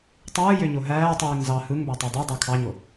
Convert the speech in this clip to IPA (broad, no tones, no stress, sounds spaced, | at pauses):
tˤ ɯː j ø ɲ o ɦ æː tˤ yː ŋ z ɑ h ɯ ŋ b æ tˤ æ dˤ ø dˤ ɑ kʰ ɑ ɲ o